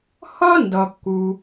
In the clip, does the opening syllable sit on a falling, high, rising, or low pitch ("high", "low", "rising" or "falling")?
high